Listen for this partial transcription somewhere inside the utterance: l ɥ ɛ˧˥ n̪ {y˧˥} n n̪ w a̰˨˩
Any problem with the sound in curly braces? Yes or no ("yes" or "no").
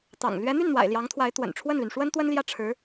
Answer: yes